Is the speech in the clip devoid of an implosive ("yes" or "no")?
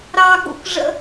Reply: no